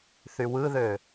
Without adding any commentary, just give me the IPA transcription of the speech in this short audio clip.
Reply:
θ y w ɯ ð ø

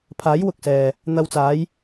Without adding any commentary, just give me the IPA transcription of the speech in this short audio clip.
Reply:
pʰ aː˨˥ j w ʊ˨ k̚ s ɛː˨ | n̪ ɐ˧ w t͡s aː˨˥ j

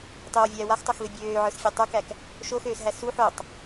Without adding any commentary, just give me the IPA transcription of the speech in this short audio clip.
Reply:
tˤ ø w vʲ æː w a x tˤ o x v e bʲ øː ʕ ə˞ s fʲ a tˤ ə˞ k æ k | ʃ o x øː s ɦ æ s u ħ o tˤ

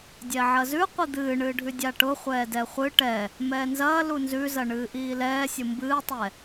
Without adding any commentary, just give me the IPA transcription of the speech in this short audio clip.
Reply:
dʲ ɛ ʕ ɐ z ʉ qʷ i d̪ ɨː ɳ ɨː ɖʱ ʉ dʲ a ʈ ʊ χʷ ɛː d ɛ χʷ ɨ ʈ ɛ | m ɛː n z ɐː l u n z ʉ z ɐ ɳ ɨː ʔ iː l ɛː sʲ ʊ m b ɨː tˤ ɛ

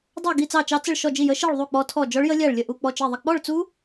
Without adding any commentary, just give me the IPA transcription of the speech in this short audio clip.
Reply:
dˤ ɑ˥˧ ɡ i˥˧ t͡s ɑ˥˧ t͡ʃ ɑ˦˥ t͡s ə˥˧ ɭ ʃ ɔ˥˧ d͡ʒ i˥˧ j ə˦˥ ʃ i˥˧ ɭ ðˤ u˥˧ k͡p ɔ˦˥ tʰ ɔ˥˧ d͡ʒ ɔ˦˥ ɭ j ə˦˥ lʲ æ˥˧ ɭ lʲ ə˥˧ ʔ u˥˧ k͡p ɔ˥˧ t͡ʃ i˥˧ ðˤ ə˥˧ k͡p ɔ˥˧ ɭ t͡s u˦˥

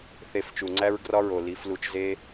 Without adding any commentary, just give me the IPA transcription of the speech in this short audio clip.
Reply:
θ e˧ f t͡ʃ u˨ ŋ͡ǀ æ˦ ɹ ɡ r ɒ˦ ɹ o˨ l i˨˦ f l u˧ t͡ʃ z e˦

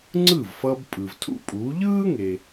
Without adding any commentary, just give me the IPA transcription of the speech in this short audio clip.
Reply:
ŋ͡ǀ ɯ˥˩ v f ʌː˧ b pʼ ɯ˩ v tʰ ṵ˥ pʼ uː˩˥ ʎ ɯː˥ ŋ e˩

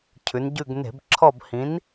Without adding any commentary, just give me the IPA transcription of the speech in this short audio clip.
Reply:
cʰ ʉ˩˧ n ɟ ʉ˦˨ ɡ n e̤˧˩˧ b ǁʰ ɔ˦˨ b h ĩ˨˥ n

